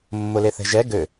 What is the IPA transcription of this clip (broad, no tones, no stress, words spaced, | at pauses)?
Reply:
mːʊleθɛ̤ʒɛ ɡø